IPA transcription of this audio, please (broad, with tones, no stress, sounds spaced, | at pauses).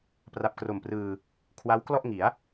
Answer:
p r a˨˩ p̚ k r o˨˩ m p r ɯː˧ | kʰ w a˦˥ w k l ɔ˥˩ ʔ ŋ i˩˦ a̯